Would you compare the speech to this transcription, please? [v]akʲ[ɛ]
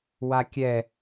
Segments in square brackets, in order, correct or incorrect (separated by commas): incorrect, correct